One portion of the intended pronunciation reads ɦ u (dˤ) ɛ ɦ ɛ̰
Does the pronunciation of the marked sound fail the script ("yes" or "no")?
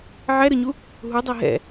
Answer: no